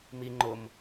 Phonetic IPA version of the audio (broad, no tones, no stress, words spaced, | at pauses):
mi ŋ͡ǃʊm